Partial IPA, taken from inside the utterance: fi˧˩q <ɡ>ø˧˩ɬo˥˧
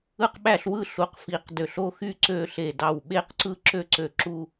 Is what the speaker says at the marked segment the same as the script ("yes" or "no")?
no